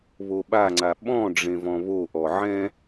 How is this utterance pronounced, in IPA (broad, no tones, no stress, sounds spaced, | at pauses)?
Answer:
β o ɓ a ŋ͡ǀ a ɓ ɔ̃ ɖ͡ʐ ẽ v ɔ̃ β o ʔ ɔ ʕ ɛ̃